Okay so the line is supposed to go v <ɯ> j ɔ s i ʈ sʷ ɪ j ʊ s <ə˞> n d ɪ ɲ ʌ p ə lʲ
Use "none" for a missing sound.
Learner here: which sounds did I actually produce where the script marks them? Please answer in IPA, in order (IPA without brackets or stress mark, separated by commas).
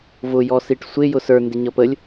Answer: ʊ, ə˞